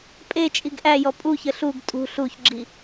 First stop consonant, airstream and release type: ejective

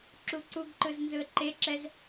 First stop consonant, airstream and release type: click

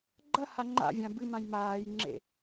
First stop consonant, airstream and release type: click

